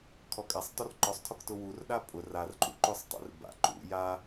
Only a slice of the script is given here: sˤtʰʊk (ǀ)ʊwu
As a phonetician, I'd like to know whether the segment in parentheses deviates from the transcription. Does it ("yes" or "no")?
yes